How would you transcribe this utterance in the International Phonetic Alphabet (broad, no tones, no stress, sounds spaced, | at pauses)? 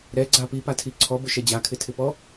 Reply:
ɾ ɛ ɡ͡ǀ a p i p a tʰ i ǀʰ ɔ b ʊ ʃ ɛ d͡ʑ a kʰ ɪ tʰ ɪ p ɔ